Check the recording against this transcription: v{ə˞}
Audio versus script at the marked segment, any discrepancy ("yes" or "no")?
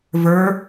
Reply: no